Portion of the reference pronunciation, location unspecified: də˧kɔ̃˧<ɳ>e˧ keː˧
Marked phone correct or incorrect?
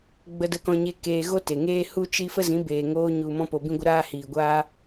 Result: incorrect